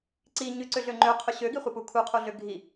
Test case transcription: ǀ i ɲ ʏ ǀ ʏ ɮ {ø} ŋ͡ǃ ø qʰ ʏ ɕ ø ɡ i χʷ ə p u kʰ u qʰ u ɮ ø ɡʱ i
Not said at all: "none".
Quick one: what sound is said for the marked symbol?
ø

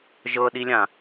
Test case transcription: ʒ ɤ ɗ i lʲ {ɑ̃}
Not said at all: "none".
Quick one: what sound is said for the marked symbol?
ã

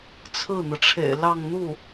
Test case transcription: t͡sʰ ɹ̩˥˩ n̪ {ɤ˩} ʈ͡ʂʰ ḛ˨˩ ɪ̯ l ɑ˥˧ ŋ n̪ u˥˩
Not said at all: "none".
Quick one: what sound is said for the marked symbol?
ɤ˩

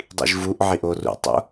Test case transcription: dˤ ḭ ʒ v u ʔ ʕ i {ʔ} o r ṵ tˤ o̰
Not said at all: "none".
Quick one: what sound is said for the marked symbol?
ʔ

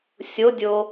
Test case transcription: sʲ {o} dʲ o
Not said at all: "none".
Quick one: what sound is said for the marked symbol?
o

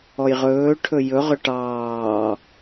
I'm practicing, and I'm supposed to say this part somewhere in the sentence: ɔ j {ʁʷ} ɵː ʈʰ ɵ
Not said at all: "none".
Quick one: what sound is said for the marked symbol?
ʁ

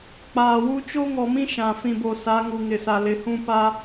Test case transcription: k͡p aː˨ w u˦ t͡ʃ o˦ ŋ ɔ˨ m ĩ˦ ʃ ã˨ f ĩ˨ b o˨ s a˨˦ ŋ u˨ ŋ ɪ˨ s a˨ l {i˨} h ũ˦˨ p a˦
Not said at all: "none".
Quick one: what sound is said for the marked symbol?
ɪ˨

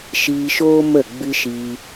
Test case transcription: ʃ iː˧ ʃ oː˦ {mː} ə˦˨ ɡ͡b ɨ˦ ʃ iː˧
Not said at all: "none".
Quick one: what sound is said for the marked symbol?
m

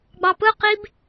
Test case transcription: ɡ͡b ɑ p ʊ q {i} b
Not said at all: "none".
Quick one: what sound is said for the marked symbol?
i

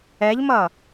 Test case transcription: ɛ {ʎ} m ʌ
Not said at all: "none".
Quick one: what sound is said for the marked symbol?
ʎ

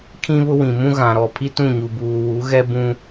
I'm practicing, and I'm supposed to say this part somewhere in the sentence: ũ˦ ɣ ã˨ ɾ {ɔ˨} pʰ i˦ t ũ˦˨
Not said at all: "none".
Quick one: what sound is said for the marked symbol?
ɔ˨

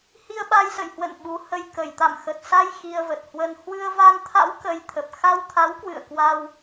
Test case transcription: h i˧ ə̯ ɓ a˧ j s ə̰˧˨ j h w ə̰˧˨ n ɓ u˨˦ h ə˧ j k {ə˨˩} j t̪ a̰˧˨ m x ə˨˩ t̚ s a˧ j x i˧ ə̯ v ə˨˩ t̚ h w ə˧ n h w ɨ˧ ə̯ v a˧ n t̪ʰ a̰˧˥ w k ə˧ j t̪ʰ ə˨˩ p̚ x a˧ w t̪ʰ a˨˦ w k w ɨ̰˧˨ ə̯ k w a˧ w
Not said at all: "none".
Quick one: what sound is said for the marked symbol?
ə˨˩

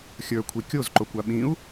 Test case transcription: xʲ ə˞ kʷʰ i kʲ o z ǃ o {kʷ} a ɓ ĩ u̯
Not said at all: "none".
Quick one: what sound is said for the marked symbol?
kʷ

